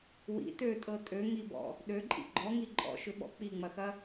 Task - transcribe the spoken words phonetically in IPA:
w ḭ t ø tʼ ɤ tʼ ø ŋ i b ɔ̰ | ɗ ø ǃʼ ḭ ɡ͡ǃ ɔ ŋ i ǃʼ ɔ̰ ʃ ʏ ɓ ɔ̰ k͡p i ŋ͡m ɐ x ɐ

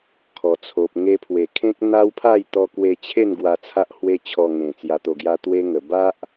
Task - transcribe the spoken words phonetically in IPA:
kʰ ɔ˨˩ t͡sʰ o˨ p̚ ŋ e˧ pʰ w e˨˩ kʰ ẽ˦ k̚ n̪ a˦ w pʰ a˥˧ j t̪ ɔ˧ k w e˧ t͡ɕʰ e˥˧ n ɡ w a˧ t͡sʰ a˦ ʔ h w e˦ t͡ɕʰ ɔ˧ ŋ ẽ˨˩ t͡s j a˧ t̪ o˧ ɡ j a˦ t̪ w e˦ ŋ ə˨˩ b a˦ ʔ

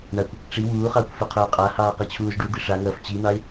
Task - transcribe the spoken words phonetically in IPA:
ɳ a kʷ | ʈ͡ʂ i w uː χ ɑː kʷ f ø qʰ øː qʼ a h ɑː q i t͡ɕʰ uː z ɖ u d̪ i ʂ a ŋ ɐː f t͡ɕ i n̪ ɑ ɪ̯

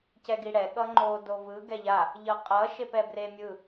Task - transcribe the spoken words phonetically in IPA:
c ɛ ɡ i ɽ ɛ ɠ ʌ ŋ͡ǃ o d o v ɯ ɡ ɛ ʎ a | ʎ ʌ qʼ ʌ ʃ e p ɛ b r e mʲ ɯ

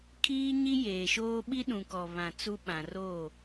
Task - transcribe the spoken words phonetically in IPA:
kʰ iː˦ ɲ i˦ j eː˨ ʃ oː˦ ɓ i˦ ɗ ũ˨ k ɔ˨ β ã˨ t͡s u˦ ɓ ã˨ r o˦˨

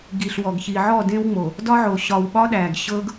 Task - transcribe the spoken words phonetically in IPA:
ɡ i˨ ɬ w ɔ˨ ɡ ç i˨ ʕ ɔ˦˨ d ẽ˦ w ŋ͡m o˨ | d ɒ˦ ʕ o˨ ɕ ɒ˨ w ɓ ɒ˦ ɗ æ˨ ɡ ɕ ɤ˦ ɡ

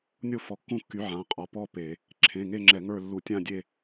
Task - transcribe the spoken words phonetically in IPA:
nʲ o˥˧ f ɔ˨˥ kː ũ˥˧ kː y˨˥ ʕ ã˩˧˩ qʼ ɔ˩˧˩ p ɔ˥˧ p e˧˩˧ | ǁʰ ẽ˩˧˩ ŋ e˥˧ ŋ͡ǁ ɛ˧˩˧ ŋ ə˞˥˧ lː u˧˩˧ tʲ ã˥˧ dʲ e˥˧

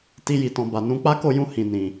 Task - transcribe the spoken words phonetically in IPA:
t i˧ j i˨ t ɔ̃˨ b a˨ n ũ˨˦ k͡p a˦ k o˦˨ j ũ˧ h ĩ˨ n ĩ˨

